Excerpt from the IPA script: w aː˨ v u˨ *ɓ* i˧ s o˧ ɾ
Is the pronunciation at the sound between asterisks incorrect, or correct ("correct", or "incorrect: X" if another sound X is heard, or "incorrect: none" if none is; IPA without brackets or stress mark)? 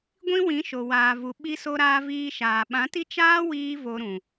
correct